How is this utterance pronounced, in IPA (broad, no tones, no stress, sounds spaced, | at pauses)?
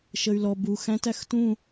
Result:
ʃ ə y̯ l ɔ b u x æ̃ t æ x t ũ